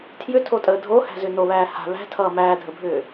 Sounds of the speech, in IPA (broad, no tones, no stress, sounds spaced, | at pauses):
tʰ j ʏ tʰ o tʼ əː dʱ o h æ̤ z ʏ n o β æː h a̤ β æ̤ tʰ ʌː m æː dʱ ə bʱ ʏː